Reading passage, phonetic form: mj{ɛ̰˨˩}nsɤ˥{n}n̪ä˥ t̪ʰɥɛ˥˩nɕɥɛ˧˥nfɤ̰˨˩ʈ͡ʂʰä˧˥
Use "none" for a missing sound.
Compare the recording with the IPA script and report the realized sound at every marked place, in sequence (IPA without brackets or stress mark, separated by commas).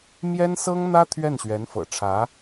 ɛ˥, ŋ